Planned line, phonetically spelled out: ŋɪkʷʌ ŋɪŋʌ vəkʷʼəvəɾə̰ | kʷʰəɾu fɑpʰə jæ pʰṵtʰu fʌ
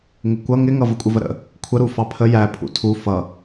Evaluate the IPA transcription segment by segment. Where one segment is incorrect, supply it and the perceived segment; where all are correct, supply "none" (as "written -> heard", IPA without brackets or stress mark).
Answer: none